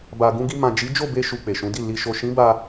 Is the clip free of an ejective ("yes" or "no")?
yes